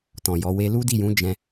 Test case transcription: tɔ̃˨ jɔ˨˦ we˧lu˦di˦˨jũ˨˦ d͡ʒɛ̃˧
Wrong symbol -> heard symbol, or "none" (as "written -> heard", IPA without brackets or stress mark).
none